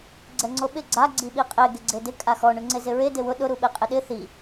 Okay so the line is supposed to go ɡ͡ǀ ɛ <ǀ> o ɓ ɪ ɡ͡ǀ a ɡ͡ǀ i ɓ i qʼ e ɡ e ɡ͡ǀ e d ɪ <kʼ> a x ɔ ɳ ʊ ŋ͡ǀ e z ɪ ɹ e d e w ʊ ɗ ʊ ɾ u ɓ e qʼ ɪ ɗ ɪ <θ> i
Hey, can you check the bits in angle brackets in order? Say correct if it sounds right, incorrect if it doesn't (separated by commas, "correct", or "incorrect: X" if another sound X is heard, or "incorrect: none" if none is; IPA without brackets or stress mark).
incorrect: ŋ͡ǀ, correct, correct